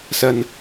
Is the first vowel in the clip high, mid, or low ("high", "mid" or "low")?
low